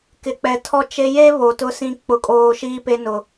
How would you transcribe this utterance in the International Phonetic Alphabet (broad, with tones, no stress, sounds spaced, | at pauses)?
k ɪ˨ k͡p ɛ˨ tʰ ɔ˦ t͡ʃ e˦ j e˦ β o˨ t ʊ˦ s ĩ˦ k͡p ʊ˦ kʼ oː˦ ʃ iː˦ p e˦ n ʊ˦